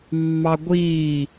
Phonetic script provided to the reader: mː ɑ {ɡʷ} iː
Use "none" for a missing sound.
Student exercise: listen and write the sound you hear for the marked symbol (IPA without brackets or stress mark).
ɡʷ